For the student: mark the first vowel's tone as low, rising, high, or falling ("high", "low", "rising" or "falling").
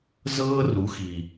high